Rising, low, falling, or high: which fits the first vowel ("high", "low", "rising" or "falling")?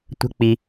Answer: high